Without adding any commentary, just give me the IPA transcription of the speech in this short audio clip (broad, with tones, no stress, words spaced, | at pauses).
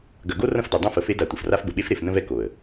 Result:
ɡɐ˨ɡo˦ rɐ̃˦fdɐ˨dˤõ˦fə˨ fe˦da˨ tʷə˨fra˦fbə˨ ɓe˦fɾe˨fnə̃˦vɛ˦ ko˨ə̯